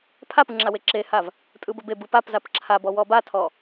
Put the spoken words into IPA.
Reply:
pʰ a p ɯ ŋ͡ǁ a w e ǁ e h a v | tʼ ɯ b ə b e b ɯ p a p z a p ǁʰ a b ɔ w ɔ b a tʰ ɔ

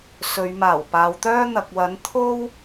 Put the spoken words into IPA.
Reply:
s ɵ˨˧ ɥ m aː˨˩ w p aː˨˧ w t̪ œː˥ n̪ ɐ˨ k̚ w ɐ˨˥ n t̪ʰ o˥ w

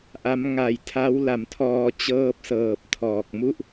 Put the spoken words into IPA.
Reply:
ʔ a˦˥ m ŋ a˨˩ j tʰ a˦˥ w l a˨˩ m tʰ ɔː˧ t͡ɕ ɤː˦˥ p̚ s ɤː˨˩ p̚ tʰ ɔː˨˩ k̚ m u˥˩ ʔ

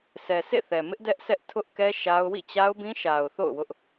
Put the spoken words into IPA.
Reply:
s ɛ˨ s ḛ˦˨ θ ɛ˨ m ɪ˦ ʔ d ɛ˦ ʔ sʰ ɛ˦ ʔ tʰ ʊ˦ ʔ k ɛ˦ ʃ a˦ ʊ̯ w ḭ˦˨ t͡ɕ a˦ ʊ̯ b ĩ˦ ʃ a˨ ʊ̯ θ o̰˦˨ ʊ̯ w ʊ˦ ʔ

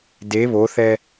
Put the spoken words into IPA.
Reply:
d e β o θ ɛ

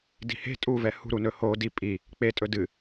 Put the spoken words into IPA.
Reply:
d i̤ h e̤ tʼ u v ɛ h ṳ ɾ u n ɵ h o d i pʼ i | k͡p e tʼ ɵ d ɨ

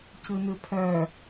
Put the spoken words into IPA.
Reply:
c ɯ n ɯ pʰ œ

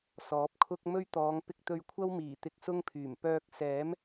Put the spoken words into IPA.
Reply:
s ɔː˨˥ p̚ kʰ ʊ˥ k̚ m ɵ˥ ɥ t̪ ɔː˨˧ ŋ p ɪ˧ k̚ t̪ ɵ˧ ɥ kʷʰ ɐ˥ w m iː˨˩ t̪ ɪ˧ k̚ s ʊ˥ ŋ pʰ yː˨˩ m p œː˧ k̚ s ɛː˨˥ m

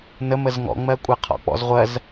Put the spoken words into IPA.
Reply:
n ə m ə z ŋ ɔ̰ ŋ͡m ɜ kʷʼ a qʰ ɔ̰ k͡p ɔ̰ z ʁʷ ɜ z

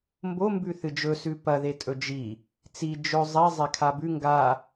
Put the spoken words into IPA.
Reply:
m b o m b ʉ θ ɨ d͡ʒ ɵ s ʉ p ɐ ð e tʼ ɵ d͡ʒ i | t͡s i d͡ʒ ɵ zˤ i zˤ e kʰ a b ʉ ŋ ɡ a

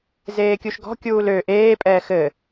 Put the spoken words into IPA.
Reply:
z eː kʲ u ʃ ɡ ɔ̤ kʲ uː l ø ʔ eː pʼ ɛː x ɘː

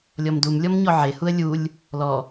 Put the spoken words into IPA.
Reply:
lʲ ɔ m d u m lʲ ɔ m ɲ ɔ ʕ e h u ə̯ lʲ u lʲ | l ɔ

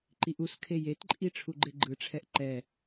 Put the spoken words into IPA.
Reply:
ǃ i ʔ u s kʰ e j e t ǃʼ i ʈ͡ʂʰ u ɡ͡ǃ e ɡ͡ǃ ɯ ʈ͡ʂʰ ɛ ʔ ǃ ɛ

